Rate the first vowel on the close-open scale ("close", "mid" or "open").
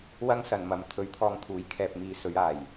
open